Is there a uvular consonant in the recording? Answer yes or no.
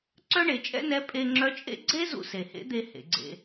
no